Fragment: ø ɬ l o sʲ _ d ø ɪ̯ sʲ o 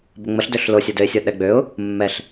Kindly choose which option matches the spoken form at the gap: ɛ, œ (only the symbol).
œ